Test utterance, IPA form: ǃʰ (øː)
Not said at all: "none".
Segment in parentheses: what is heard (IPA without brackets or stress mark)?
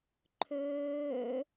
øː